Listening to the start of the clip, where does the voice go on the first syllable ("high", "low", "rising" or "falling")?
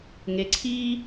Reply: rising